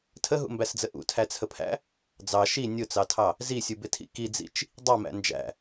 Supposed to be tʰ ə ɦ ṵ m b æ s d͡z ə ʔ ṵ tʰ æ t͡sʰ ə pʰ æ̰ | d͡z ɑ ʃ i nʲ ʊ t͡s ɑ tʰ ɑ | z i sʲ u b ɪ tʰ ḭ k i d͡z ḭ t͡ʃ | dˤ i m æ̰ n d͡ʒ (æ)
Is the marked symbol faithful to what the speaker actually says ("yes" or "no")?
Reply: no